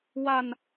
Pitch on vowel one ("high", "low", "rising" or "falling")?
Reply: falling